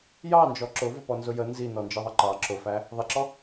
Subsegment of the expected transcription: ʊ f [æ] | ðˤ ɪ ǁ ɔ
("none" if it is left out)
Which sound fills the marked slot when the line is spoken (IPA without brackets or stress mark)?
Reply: æ